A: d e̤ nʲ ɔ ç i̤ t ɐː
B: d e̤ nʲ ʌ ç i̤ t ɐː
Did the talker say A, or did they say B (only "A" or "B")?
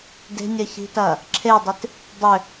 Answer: B